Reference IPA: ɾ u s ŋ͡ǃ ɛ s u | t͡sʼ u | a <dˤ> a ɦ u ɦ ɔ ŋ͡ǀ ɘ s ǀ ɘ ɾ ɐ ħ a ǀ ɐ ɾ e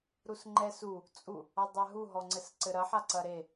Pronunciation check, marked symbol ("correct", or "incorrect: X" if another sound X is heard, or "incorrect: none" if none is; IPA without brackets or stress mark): correct